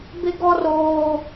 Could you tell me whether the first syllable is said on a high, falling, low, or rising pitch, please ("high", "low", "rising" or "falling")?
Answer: high